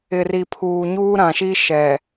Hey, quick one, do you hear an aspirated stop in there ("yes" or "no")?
yes